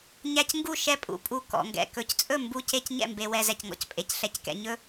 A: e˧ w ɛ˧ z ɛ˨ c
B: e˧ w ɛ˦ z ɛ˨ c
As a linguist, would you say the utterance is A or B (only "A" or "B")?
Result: A